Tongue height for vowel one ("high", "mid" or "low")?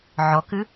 mid